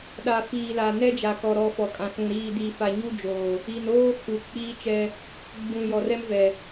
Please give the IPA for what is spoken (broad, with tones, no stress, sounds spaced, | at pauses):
ɗ a˨ f iː˨ l a˨ n ɛ˦ d͡ʒ a˨ k ɔ˨ ɾ ɔ˨ f ɔ˨ kʼ ã˨ s ũ˨ ɾ iː˨ d i˨ f a˨ ɲ u˦ d͡ʒ oː˨ | i˨ n oː˦ kʰ u˨ k͡p iː˦ t͡ʃ ɛ˦ | ɡ͡b ũ˨ j ɔ˨ r ɛ˦ m v ɛ˨